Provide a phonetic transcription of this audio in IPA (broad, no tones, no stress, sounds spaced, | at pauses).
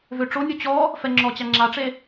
v ø ʈ͡ʂ o nʲ u t͡ɕ ɔ | f ɛ ŋ͡ǁ ɔ t͡ɕ a ŋ͡ǁ a ʈ͡ʂ e